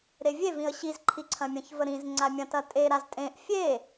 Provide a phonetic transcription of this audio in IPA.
ɾ e vʲ e v ĩ ə̯ ɕ i z ǃʰ i ǀʰ ɐ̃ mʲ ə̃ ç v ə ɾ ĩ z ŋ͡ǀ a mʲ ɐ̃ t ɐ tʼ e ɾ a z tʼ ẽ ʔ fʲ e

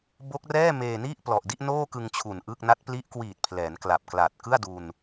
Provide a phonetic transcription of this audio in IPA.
b o˦˥ k̚ r ɛː˥˩ m eː˧ n i˥˩ ʔ p l ɔ˨˩ ʔ d i˥˩ ʔ n oː˥˩ k ɯ˧ ŋ t͡ɕʰ u˨˩ n ʔ ɯː˥˩ k̚ n a˦˥ t̚ p l i˦˥ ʔ k w iː˨˩ t̚ pʰ l ɛː˩˦ n k l a˨˩ p̚ k l a˨˩ t̚ k ɯ˥˩ a̯ d u˧ n

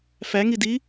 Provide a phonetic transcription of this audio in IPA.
f æ ŋ i d i

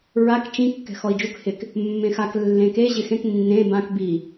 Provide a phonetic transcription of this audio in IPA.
ɹ a k t͡ʃ ĩ kː ɛ̤ x ɔ i̯ d͡ʒ u k h ɪ k | mː ẽ x a k lː ẽ k e ʑ ɪ x ẽ k nː ẽ b ã k b i

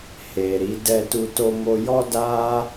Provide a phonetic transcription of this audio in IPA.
h e˨ ɾ i˨˦ d ɛ˧ t u˧ t o˧ m o˧ j ɔ˦ d a˦

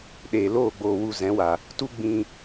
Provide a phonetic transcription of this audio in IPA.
ɗ eː˨ l oː˦˨ ɡ͡b oː˨ w u˨ z ɛ̃˨˦ w a˨ | t u˦ ɡ͡b ĩ˧

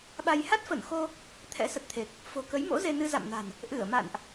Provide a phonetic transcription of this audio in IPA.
ɓ a˧ j h a˦˥ t̚ f ə˧˩ n x o˧ | t̪ʰ ɛ̰˧˥ s ə˨˩ t̚ t̪ʰ e˨˩ k̚ | f o̤˨˩ k ə˨˦ j m o̰˧˥ z e˧ n ɨ˧ z a̰˧˨ m n a̤˨˩ n | ʔ ɨ˧˩ ə̯ m a̰˧˨ n ʔ

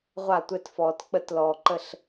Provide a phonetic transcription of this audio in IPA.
ʁʷ a˥˩ tʷ ɛ˦ t f ɔː˨ t k͡p ə˦ t l ɔː˨ ǃ ə˥˩ ɬ

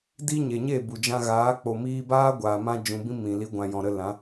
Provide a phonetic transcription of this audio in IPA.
d i˦ ɲ e˨ ɲ e˦˨ b u˨ d͡ʒ ã˧ ɣ aː˨˦ k͡p o˨ m iː˧ b aː˦ ɡʷ aː˨ m ã˧ d͡ʒ ũ˨ b ĩ˦ m ĩ˨ l i˨˦ ɡʷ ã˨ j ɔ̃˨ ɾ ə˧ l ã˨˦

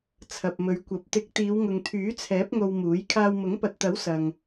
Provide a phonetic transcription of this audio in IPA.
t͡sʰ ɐ˨ p̚ m ɵ˨˧ ɥ kʷ ɐ˨˥ p̚ t̪ ɪ˨˥ k̚ t̪ iː˨˧ w ŋ ʊ˨ ŋ t̪ʰ yː˨˥ t͡sʰ ɛː˨˥ p̚ ŋ o˧ w m uː˨˥ j kʰ aː˧ w m ʊ˨˥ ŋ p ɐ˨ t̚ t̪ ɐ˨˥ w s ɐ˨ ŋ

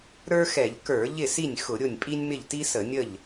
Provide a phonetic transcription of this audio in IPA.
ɾ ə˞˥ x ɛ˧˩˧ ʎ k ə˞˧˩˧ ʎ ɪ˥˩ s i˥˩ nʲ x ʊ˧˩˧ ɾʲ ʊ˥˩ nʲ pʼ i˥ nʲ m ɪ˥˩ ʎ t i˥ s ə˧˩˧ nʲ ə˥˩ ʎ

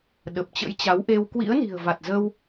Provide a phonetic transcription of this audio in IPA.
ɗ ə˨˩ p̚ t͡ɕ ə̰˧˥ j t͡ɕ a˨˦ w ʔ e˧ w k w ḭ˧˥ ə̯ n i̤˨˩ ə̯ v a˨˩ t̚ z ə˧ w

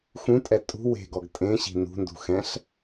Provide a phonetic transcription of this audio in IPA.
x ũ tʼ ɛ tʼ ṳ w e̤ ɡ ɔ ɡ tʼ ẽ ɕ i̤ n ṳ n d ṳ x ɛ̃ ɬ

